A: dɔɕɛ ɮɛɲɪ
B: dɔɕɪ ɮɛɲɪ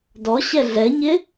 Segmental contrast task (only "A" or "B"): A